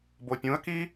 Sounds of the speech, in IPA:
bopʲũə̯ki

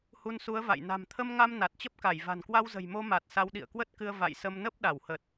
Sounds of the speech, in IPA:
hu˧nsu˨˦ə̯va̰˧˨j na̤˨˩mt̪ʰə˧mŋa˧m na˨˩t̚t͡ɕə˦˥p̚ka˧˩j va̤˨˩nkwa˧wzə̤˨˩jmo˧ ma˨˩t̚ sa˨˦wɗḭ˧˨ə̯kwə˦˥t̚kɨ˧ə̯ va̰˧˨jsə˧m nə˦˥p̚ɗa˧˩whə˨˩t̚

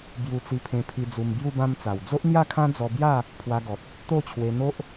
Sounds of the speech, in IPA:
bju˧t͡si˧pʰẽ˧pʰi˧ d͡zu˧mbju˥˧bã˦mt͡sa˨˩w d͡zo˦ʔn̪ja˥˧kʰã˦ d͡zɔ˧bja˥˧ | pʰwa˧ɡɔ˨t̚ | t̪o˥˧t͡ɕʰwe˧ n̪o˦ʔ

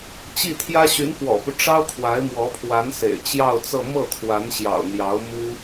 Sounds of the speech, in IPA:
t͡ɕi˥˩t̪ʰjä˥ ɕy˧˥nfwɔ̰˨˩pu˦ ʈ͡ʂɑ˥ʊ̯ kʰwa˧˥ɪ̯mwɔ˧˥pʰwa˧˥nsḛ˨˩ɪ̯ t͡ɕjɑ˥˧ʊ̯t͡sɤ˥˧ mɤ˥˩t̪ʰwa˧˥nɕjɑ̰˨˩ʊ̯ n̪jɑ˧˥ʊ̯mu˥

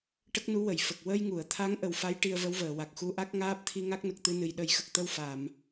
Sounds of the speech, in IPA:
ʈə˦˥k̚nu˧˥wə˨˩˨j fə˨˩k̚ wə˧jŋu˨˩˨ə̯t̪ʰa˧˥ŋ ʔə˨˩wfa˧˥j ʈi˧ə̯və˧˥wvəː˨˩˨wa˨˩k̚ xu˧ʔa˦˥k̚ ŋaː˦˥p̚t̪ʰi˧ŋa˦˥k̚nə˨˩k̚ t̪ɨ˧nɨ˨˩j ɗə˨˩˦jxə˨˩k̚t̪ə˧w fa˨˩˨m

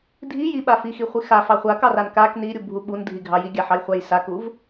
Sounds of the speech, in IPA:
dʱi jiɓa fixiχʷi xafɑ χʷakɑran kak niɾʲubʱu ɓundʱiɡʱɑ jiɡʲaħɑjχʷaj sakuv

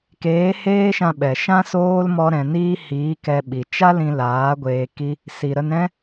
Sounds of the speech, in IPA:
keː˨˦heː˦ʃã˧ɓɛ˨ ʃã˦soː˦l mɔ˦ɾɛ̃˧niː˦ hiː˨˦kɛ˧ ɓi˨t͡ʃa˦lĩ˧ laː˨˦ɡʷeː˧ki˦ | si˨ɾə˧nɾɛ̃˦

